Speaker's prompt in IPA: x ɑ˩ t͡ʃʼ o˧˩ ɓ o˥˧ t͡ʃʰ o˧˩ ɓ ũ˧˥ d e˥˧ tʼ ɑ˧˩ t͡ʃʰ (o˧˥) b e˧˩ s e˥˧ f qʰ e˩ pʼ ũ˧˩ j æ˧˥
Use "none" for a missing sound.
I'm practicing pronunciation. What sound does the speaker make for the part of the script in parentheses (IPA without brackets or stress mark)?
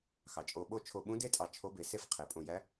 o˧˥